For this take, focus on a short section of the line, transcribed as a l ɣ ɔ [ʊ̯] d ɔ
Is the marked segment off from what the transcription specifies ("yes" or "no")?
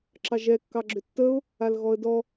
yes